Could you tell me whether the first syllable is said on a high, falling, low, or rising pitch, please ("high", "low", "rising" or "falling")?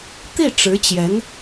falling